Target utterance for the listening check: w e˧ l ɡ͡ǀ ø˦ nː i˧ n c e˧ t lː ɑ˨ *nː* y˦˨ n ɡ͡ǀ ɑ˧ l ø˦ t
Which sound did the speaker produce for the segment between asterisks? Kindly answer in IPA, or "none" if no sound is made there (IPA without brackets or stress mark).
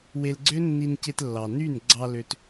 n